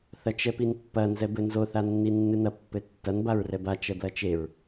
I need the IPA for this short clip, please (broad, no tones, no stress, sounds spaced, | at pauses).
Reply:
θ ɐ t͡ʃ ɛ p i n pː ɐ n z ɛ b ɘ n z o θ a nː i nː ɨ n ɐ pː ɘ tː ɐ n b a ɹ r ɛ b a t͡ʃ ɛ b l ɐ t͡ʃ e ɹ